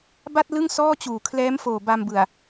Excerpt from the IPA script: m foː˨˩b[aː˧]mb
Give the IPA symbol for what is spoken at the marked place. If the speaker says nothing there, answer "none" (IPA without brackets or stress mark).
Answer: a˧